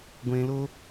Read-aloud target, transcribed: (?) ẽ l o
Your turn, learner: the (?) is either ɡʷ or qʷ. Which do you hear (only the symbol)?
ɡʷ